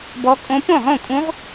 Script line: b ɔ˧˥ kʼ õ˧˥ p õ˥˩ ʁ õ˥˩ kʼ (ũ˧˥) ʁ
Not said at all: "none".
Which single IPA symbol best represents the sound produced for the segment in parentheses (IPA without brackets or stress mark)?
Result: ũ˧˥